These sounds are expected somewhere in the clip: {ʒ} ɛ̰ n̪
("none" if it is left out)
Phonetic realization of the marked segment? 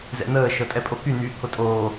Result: z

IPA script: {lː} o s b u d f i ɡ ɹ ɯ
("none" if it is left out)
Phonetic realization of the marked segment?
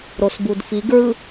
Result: ɾ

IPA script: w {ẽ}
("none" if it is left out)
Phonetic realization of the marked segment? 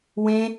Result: ẽ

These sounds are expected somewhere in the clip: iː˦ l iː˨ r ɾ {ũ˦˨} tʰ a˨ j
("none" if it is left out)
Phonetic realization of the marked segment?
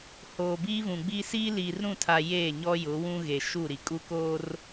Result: ũ˦˨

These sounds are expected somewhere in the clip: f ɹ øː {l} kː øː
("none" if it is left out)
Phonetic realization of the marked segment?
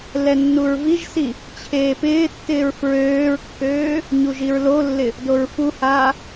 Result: ɹ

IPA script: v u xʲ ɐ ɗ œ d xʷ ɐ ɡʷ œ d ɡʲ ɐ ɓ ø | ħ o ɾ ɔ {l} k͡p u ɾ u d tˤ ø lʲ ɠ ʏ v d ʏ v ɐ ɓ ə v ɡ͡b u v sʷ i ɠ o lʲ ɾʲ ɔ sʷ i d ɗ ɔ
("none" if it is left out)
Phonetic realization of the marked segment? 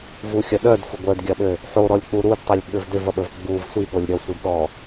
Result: lʲ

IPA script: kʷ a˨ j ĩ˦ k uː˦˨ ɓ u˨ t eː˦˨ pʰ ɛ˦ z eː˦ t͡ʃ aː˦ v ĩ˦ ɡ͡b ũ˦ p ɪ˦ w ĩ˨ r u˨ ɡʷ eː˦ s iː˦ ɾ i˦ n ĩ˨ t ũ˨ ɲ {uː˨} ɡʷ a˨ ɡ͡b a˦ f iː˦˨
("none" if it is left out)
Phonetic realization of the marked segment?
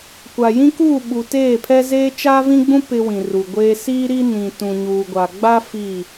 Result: uː˨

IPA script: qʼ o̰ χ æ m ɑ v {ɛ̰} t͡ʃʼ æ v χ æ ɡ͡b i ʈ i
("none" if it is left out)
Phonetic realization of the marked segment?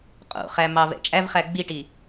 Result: ɛ̰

